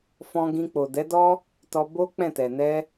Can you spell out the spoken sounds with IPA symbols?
f ɔ̃˧ ɡ ĩ˧ k͡p o˨ d ɛ˨˦ d ɔ˦ | t ɔ˧ b o˦ k͡p ɛ̃˦˨ t ɛ˨ n ɛ˧

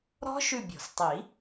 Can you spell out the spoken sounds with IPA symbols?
ɾ ɔ̤˦˥ ʃ ʉ˦˨ bʲ ɔ̤˨˩˦ s tˤ i˨˩˦

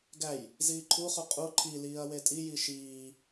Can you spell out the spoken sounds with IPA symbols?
ɡ æ j | z iː ǃʰ u χ u qʼ u ǃʰ i l iː ɐ̯ w e tʼ i j i ʃ iː

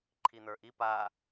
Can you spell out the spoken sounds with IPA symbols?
ǃʰ i n̪ ə˞ ʔ i p a

